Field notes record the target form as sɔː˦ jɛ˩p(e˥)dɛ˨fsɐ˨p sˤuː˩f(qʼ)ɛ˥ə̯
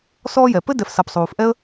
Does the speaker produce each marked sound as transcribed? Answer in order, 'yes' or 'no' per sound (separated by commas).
no, no